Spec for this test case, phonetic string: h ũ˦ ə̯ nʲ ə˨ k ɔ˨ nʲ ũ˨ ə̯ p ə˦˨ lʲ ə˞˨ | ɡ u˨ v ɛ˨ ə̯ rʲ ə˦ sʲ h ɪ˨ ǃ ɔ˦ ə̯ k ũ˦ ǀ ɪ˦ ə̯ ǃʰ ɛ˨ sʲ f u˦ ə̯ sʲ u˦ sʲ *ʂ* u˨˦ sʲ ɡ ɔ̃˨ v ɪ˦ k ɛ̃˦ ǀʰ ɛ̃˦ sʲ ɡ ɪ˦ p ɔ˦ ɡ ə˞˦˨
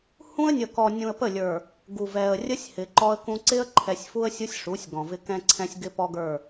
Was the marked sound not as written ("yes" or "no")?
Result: no